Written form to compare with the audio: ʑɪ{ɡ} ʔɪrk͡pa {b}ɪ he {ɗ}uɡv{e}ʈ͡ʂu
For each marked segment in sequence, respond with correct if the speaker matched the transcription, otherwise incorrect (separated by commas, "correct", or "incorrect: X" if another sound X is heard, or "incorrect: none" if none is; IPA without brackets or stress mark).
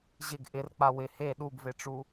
correct, incorrect: w, correct, correct